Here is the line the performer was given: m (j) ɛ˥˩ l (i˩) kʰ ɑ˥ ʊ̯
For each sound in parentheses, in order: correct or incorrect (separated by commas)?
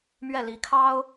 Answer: incorrect, incorrect